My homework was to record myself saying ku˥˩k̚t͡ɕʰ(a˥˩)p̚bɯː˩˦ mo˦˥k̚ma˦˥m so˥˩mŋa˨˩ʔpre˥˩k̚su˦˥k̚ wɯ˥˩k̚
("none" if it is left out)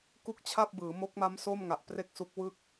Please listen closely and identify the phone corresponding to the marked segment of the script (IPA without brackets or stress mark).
a˥˩